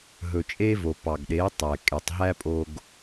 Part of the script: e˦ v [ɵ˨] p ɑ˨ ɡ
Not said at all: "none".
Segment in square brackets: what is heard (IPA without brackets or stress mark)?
o˨